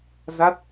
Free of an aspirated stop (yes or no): yes